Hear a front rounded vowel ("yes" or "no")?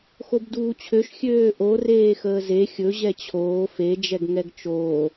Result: yes